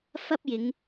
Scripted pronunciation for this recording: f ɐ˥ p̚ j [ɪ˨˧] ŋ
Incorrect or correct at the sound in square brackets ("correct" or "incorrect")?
correct